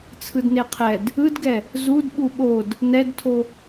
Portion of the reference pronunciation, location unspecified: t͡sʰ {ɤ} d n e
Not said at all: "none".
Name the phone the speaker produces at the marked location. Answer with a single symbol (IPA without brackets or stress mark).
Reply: ɯ